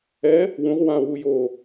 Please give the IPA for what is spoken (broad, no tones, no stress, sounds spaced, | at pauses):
ɛ | w ũ ʁ w ã w u j o